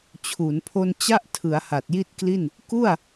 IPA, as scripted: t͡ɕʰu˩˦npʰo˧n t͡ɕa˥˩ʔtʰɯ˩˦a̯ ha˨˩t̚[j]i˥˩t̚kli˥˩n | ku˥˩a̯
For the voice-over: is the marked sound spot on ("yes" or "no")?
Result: yes